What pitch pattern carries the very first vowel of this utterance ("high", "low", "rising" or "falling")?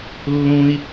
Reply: high